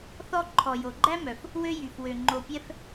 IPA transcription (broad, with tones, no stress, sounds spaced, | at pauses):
θ ɔ˦ ǃʰ ɔ˩ j o˩ ɡ͡ǃ æ˥ m œ˩ f | w ø˦ j y˩ f w ø˩ ŋ͡ǃ o˨ pʲ ɛ˦ f